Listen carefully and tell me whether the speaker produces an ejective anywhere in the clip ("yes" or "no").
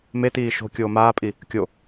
yes